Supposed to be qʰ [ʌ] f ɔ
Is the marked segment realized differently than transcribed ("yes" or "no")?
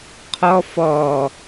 yes